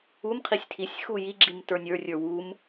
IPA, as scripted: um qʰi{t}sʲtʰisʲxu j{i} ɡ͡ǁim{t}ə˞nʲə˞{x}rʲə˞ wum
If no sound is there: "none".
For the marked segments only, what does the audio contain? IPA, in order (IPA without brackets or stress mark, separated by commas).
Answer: none, i, t, none